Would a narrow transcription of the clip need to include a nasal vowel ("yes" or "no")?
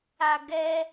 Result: no